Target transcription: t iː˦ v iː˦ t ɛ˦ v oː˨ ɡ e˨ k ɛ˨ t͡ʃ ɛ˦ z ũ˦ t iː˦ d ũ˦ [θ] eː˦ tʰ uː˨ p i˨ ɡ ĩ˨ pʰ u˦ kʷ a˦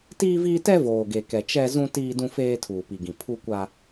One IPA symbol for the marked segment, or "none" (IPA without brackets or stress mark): f